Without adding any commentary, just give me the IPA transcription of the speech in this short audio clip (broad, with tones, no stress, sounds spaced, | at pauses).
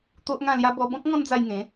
t̪ o˦ ʔ ŋ ã˥˧ l j a˦ b ɔ˧ b ɔ̃˦ k̚ ŋ ɔ̃˦ n d͡z a˧ j ŋ ẽ˨˦